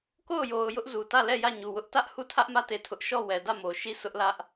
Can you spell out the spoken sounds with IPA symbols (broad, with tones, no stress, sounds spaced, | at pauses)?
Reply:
k o˦˨ ʊ̯ j o˨ ʊ̯ j ʊ˦ ʔ z u˨ t ä˦˨ l ɛ˦˨ j ä˦˨ ɲ u˨ w ʊ˦ ʔ t ä˦ ʔ h u˦˨ tʰ ä˦ ʔ m ä˦˨ t e˦˨ tʰ ʊ˦ ʔ ʃ ɔ˦˨ w ɛ˨ d ä˦˨ m o˨ ʃ i˦˨ s ʊ˦ ʔ l ä˦ ʔ